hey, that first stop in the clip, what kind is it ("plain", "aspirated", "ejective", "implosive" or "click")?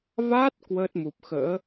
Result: plain